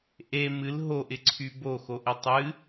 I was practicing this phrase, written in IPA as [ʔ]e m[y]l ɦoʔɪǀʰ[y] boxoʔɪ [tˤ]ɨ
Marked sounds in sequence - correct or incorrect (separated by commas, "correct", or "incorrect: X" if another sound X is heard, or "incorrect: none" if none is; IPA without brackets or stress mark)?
correct, incorrect: ɨ, correct, correct